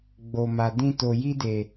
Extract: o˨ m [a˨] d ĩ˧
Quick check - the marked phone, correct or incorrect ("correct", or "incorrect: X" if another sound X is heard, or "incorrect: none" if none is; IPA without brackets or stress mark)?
correct